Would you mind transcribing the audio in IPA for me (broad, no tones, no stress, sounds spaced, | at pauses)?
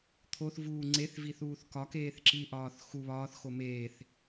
t̪ʰ o θ v uː ŋ͡ǀ e θ v i θ uː θ k ɒ k eː θ ǁ i ʔ ɒː θ x u β ɒː θ x o m eː θ